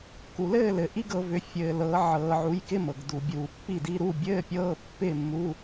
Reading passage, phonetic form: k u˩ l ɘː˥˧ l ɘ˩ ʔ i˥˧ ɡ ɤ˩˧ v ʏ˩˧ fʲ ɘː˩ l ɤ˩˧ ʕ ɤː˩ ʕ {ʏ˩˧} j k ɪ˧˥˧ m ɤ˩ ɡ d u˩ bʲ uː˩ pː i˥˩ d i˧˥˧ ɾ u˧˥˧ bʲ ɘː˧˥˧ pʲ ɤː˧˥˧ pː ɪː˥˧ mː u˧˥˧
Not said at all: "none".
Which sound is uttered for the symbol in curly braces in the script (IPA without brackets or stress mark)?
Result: u˩˧